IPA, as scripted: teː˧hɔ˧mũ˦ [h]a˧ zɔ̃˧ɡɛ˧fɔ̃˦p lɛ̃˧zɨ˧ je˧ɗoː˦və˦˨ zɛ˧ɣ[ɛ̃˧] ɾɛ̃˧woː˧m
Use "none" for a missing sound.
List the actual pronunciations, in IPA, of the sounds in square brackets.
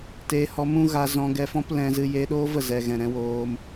ɣ, ɛ̃˨

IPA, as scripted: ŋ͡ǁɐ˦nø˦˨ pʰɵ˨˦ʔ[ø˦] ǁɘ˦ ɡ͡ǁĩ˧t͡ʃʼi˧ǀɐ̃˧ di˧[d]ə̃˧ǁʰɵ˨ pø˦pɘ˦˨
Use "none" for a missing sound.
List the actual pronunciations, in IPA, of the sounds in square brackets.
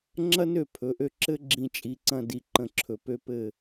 ø˧, ǃ

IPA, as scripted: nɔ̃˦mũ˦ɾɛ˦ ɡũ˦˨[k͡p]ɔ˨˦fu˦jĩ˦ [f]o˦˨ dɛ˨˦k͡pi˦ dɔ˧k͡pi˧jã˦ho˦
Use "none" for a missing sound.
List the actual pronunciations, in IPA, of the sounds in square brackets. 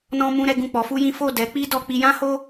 k͡p, f

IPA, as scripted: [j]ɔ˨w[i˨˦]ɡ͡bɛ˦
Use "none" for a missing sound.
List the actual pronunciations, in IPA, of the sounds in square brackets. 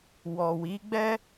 w, i˨˦

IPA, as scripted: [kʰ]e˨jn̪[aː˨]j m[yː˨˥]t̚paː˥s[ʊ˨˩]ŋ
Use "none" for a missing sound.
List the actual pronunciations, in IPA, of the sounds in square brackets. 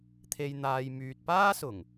t̪ʰ, aː˨, yː˨, ʊ˨˩

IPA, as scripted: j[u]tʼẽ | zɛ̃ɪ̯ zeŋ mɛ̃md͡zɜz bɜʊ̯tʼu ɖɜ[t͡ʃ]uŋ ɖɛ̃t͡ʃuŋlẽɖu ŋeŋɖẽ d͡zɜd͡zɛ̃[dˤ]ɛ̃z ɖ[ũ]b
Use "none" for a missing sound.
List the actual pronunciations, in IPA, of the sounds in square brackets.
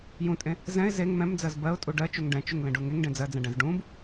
ũ, t͡ʃ, ɖ, ũ

